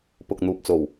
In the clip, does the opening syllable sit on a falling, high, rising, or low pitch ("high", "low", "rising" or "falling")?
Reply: low